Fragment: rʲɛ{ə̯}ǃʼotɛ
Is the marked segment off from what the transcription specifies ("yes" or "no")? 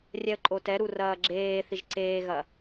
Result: no